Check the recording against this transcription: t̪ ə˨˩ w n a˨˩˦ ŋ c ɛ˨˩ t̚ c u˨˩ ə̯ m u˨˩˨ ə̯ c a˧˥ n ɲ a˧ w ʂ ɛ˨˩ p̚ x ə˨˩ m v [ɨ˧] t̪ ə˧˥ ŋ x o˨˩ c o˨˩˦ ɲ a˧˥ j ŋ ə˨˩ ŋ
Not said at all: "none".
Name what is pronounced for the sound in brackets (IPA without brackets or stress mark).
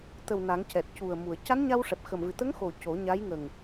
ɨ˨˩